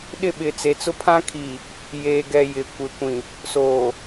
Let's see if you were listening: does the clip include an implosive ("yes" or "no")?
yes